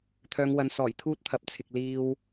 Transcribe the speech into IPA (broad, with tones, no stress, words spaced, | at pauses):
t̪ʰœː˨˧ŋwɐ˨˧n sɔː˨˩jt̪ʰuː˥t̚t̪ʰɐ˨p̚t͡sʰɪ˨k̚ liː˧w